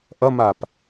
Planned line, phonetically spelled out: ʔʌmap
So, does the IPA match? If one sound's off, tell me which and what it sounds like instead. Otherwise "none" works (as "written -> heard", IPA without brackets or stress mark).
none